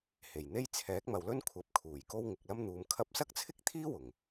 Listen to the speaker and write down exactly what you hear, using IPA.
h e˨˩ j n̪ e˥ j t͡sʰ ɛː˨˥ k̚ m ɐ˨ w l ɵ˥ n kʷʰ ɐ˨˥ p̚ kʰ uː˨˩ j k o˥ w ŋ ɪ˨ k̚ l ɐ˥ m n̪ uː˨ m kʰ ɐ˧ p̚ s ɐ˥ k̚ t͡sʰ ɪ˥ k̚ t̪ʰ iː˥ w ʊ˨˩ ŋ

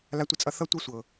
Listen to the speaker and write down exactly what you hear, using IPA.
l a˨ tʷ ə˨ t͡sʼ ʌ˨ θ ʌ˦ tʷ ɤ˦ sʷ ɤ˨

